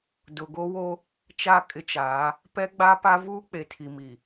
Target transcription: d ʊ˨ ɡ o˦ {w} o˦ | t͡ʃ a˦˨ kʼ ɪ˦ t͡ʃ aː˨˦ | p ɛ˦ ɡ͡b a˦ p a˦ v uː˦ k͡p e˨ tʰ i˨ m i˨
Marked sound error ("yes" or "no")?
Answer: no